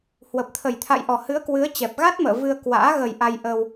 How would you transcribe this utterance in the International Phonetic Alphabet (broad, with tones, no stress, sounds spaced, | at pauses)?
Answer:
h w ə˨˩ p̚ t̪ʰ ə˨˩ j t̪ʰ a̰˧˨ j ʔ ɔ˨˩ h ɨ˨˦ ə̯ k w ɨ˨˦ ə̯ t͡ɕ ɛ˨˩ p̚ ɣ a˦˥ t̚ m ə̰ː˧˨ v ɨ˧ ə̯ k w a̰ː˧˥ ɣ ə˨˩ j ʔ a˧ j ʔ ə˧ w